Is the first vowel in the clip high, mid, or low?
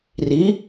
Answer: high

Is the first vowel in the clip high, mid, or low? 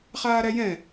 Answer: low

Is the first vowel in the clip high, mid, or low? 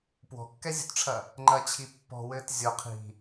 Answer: mid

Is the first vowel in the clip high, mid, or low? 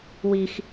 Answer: high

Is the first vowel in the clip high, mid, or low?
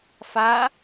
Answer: low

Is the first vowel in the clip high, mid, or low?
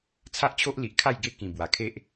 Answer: low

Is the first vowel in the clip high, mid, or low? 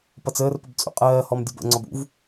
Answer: mid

